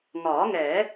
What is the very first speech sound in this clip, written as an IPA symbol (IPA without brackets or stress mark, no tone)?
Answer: ŋ